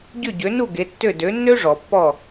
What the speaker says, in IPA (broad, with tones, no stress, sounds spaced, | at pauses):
ɟ ʏ˥˩ ɟ ø˩˥ n u˥˩ ɡ e˩˥ tː ø˥˩ d ø˩˥ nː ø˥ ʐ ɔ˩ pː ɔ˥˩